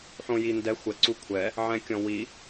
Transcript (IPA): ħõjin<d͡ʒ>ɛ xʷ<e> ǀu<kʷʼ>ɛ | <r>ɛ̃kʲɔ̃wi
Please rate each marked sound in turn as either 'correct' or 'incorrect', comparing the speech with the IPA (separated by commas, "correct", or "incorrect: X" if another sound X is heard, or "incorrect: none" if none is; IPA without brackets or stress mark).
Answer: incorrect: d, incorrect: ɛ, incorrect: kʷʰ, incorrect: ʕ